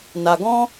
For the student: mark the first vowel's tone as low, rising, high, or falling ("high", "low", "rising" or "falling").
low